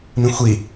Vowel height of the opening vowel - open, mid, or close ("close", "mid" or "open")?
close